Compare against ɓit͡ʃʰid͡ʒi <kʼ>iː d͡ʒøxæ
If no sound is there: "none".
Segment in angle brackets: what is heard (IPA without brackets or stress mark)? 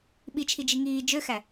ŋ